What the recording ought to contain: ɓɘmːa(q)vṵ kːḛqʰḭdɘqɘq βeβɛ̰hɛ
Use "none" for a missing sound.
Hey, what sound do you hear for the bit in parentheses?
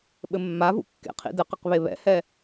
none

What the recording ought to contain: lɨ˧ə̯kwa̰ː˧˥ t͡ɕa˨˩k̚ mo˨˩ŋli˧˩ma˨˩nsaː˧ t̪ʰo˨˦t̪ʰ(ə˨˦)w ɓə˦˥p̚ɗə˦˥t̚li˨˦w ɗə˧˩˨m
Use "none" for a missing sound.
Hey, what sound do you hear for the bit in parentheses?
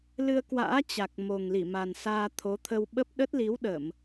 ə˧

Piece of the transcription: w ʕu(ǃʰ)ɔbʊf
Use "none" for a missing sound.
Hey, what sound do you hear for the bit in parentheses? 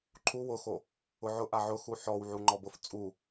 ŋ͡ǃ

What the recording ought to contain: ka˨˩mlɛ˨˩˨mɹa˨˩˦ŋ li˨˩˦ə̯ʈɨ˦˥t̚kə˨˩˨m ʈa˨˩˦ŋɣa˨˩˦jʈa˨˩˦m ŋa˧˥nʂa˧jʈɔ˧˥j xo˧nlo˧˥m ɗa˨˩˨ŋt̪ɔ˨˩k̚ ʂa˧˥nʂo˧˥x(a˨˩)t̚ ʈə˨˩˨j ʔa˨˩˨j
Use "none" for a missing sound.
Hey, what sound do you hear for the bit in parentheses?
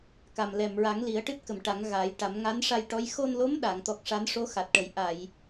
a˨˩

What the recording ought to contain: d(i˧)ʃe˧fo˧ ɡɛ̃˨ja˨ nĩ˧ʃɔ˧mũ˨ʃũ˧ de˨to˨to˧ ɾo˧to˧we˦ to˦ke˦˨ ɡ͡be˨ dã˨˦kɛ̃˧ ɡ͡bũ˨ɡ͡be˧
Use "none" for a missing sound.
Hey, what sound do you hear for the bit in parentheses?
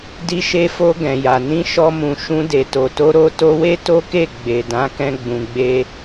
i˧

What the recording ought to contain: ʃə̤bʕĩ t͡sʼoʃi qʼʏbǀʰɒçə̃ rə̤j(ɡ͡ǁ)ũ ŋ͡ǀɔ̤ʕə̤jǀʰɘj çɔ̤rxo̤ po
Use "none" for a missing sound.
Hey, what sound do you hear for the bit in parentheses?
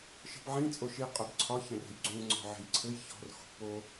ɡ͡ǀ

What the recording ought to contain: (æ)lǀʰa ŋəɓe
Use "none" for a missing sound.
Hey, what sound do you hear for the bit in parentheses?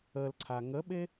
ə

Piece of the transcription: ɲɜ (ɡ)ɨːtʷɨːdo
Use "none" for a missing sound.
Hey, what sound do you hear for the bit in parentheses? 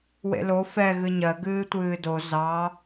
ɡ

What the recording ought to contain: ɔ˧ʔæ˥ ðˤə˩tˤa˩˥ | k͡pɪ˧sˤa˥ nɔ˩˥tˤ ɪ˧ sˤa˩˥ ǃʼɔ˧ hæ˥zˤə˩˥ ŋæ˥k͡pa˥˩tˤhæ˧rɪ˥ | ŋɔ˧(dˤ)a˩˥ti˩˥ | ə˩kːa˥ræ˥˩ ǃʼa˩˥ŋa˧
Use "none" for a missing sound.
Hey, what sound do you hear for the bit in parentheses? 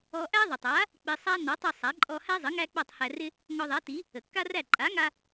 ðˤ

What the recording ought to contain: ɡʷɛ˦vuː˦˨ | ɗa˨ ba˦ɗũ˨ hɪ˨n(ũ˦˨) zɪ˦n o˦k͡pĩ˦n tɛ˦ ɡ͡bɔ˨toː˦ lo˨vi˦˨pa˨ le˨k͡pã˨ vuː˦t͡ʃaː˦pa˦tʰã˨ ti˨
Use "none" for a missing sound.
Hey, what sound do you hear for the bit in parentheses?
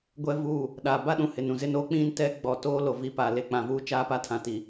ũ˨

